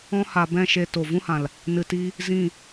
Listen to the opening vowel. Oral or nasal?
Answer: nasal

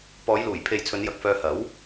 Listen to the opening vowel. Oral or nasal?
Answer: oral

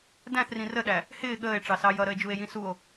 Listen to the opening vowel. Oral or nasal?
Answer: nasal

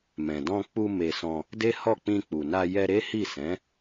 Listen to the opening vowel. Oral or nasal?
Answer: nasal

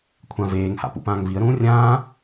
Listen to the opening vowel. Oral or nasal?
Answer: nasal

